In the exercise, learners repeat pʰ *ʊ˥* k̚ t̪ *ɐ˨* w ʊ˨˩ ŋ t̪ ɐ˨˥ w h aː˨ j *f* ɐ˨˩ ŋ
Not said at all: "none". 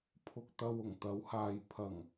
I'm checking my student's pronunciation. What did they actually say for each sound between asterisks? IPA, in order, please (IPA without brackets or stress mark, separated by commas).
ʊ˨, ɐ˨, pʰ